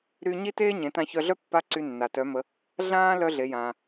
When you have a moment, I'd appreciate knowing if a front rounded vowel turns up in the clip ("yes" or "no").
yes